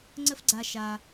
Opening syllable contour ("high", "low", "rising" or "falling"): high